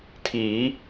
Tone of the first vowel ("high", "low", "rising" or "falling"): rising